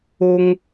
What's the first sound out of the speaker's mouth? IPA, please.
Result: o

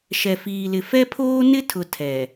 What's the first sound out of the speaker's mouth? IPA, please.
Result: ʃ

